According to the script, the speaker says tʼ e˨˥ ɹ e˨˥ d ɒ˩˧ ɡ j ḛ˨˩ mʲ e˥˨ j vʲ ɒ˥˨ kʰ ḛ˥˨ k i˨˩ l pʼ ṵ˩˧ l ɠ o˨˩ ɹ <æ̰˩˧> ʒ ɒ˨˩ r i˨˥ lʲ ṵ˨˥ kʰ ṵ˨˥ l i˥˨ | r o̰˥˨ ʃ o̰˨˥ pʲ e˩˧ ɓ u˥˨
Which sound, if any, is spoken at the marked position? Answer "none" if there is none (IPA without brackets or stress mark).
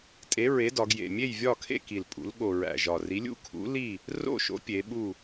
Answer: æ̰˨˩